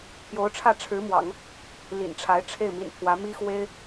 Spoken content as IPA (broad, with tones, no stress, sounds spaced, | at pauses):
pʰ j o˧˥ ʊ̯ ʈ͡ʂʰ ä˥˩ ʈ͡ʂʰ ɻ̩˧˥ m w ɑ̰˨˩˦ ŋ | l ḭ˨˩ n ʈ͡ʂʰ a˧˥ ɪ̯ ʈ͡ʂʰ e˥˩ ɪ̯ m ḭ˨˩ n pʰ w ä˧˥ m i˥ x w e˥ ɪ̯